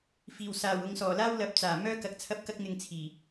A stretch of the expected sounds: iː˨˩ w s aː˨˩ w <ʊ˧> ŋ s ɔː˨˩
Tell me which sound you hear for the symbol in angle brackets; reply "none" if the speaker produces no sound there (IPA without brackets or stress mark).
ʊ˨˧